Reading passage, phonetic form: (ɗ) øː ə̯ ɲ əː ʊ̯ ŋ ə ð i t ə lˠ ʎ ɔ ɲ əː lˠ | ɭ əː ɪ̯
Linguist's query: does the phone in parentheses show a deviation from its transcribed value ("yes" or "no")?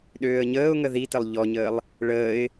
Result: no